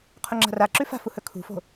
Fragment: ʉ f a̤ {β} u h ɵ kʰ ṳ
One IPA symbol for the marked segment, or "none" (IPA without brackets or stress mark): f